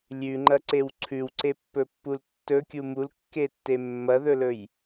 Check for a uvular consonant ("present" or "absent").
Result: absent